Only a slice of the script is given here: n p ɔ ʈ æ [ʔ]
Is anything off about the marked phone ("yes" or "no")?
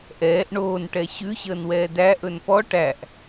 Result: no